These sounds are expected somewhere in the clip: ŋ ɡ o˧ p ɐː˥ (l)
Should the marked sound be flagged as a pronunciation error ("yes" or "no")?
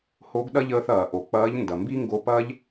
yes